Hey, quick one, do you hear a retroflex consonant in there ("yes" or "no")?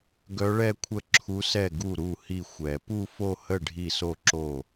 yes